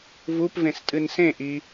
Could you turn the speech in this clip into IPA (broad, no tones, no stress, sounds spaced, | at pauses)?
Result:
v u p v ẽ s tʼ ɨ n s ẽ ʔ i